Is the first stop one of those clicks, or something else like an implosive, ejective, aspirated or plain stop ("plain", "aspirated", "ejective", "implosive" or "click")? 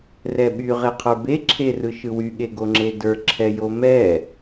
implosive